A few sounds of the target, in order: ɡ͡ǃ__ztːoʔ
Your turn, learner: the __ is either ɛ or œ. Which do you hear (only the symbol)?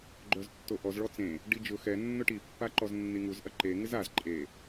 œ